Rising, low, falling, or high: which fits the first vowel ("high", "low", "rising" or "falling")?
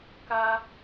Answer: high